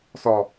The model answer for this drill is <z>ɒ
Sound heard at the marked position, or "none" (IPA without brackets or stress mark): s